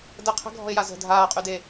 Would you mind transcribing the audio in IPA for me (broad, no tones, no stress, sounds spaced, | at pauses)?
d ə qʰ ə̤ ɡʱ ɔ̤ ɪ̯ j a z ə̤ dʱ aː qʼ y d eː